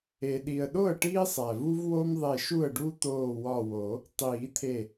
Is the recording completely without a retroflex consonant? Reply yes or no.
no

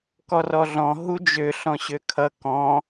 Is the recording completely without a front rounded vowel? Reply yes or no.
no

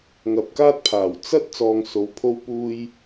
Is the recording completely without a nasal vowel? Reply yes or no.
yes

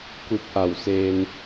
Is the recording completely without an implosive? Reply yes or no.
yes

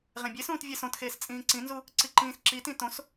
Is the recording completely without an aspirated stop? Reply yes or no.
yes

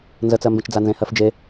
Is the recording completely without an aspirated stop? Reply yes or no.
yes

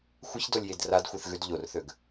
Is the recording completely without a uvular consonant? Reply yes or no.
yes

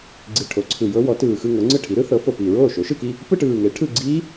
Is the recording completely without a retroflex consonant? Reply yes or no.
no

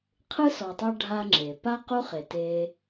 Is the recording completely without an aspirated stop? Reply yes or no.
no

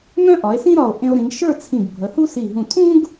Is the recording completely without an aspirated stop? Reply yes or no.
no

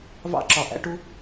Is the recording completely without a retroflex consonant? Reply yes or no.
no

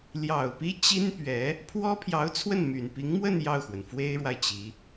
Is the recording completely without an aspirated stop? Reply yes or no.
no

